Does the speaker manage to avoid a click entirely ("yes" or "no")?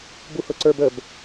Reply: no